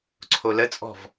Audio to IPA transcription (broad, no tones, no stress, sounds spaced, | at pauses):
ǀʰ o l ə t͡sʼ ɔ̤ v